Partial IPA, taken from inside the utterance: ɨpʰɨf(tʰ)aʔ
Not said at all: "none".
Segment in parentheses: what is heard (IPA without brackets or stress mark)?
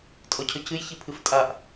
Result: tʼ